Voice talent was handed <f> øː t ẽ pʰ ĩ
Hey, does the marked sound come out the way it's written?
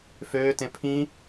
yes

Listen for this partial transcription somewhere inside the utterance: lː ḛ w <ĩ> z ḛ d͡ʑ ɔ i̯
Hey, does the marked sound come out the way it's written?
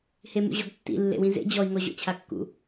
yes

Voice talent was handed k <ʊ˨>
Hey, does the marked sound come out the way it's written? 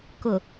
yes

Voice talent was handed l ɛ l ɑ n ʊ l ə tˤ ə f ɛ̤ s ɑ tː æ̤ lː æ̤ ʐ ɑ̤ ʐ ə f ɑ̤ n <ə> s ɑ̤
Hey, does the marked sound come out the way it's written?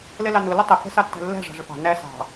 no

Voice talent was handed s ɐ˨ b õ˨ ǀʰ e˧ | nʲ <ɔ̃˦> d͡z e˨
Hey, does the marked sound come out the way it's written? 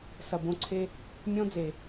yes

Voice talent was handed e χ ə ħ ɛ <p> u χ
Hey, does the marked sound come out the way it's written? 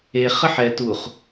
no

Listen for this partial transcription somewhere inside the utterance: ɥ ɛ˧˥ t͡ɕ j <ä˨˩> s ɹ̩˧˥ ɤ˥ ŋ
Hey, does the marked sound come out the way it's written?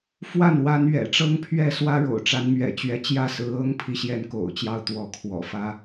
no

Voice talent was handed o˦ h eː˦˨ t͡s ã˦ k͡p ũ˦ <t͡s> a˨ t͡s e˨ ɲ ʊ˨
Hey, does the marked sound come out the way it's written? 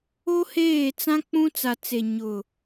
yes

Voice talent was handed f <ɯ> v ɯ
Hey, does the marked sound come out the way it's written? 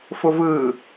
no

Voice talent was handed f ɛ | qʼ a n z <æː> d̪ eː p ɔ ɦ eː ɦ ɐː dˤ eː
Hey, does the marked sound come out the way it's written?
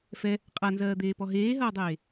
no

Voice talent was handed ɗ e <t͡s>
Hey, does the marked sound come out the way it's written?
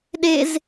no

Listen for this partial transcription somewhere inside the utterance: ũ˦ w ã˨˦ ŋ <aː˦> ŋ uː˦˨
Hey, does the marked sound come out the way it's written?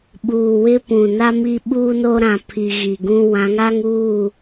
no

